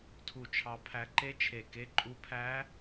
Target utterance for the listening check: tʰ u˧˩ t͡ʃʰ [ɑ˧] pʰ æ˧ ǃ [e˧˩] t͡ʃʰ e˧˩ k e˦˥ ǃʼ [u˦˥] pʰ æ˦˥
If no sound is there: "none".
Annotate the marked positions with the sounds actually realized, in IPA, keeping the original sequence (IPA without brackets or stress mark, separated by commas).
ɑ˧, e˦˥, u˦˥